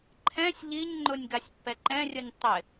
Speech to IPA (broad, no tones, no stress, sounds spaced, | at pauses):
ǃʰ ɛ̃ sʲ ʎ i ɲ ŋ͡ǃ ʊ nʲ ɡ a sʲ pː ɛ ǃ ɛ̃ rʲ ʊ nʲ tˤ ɪ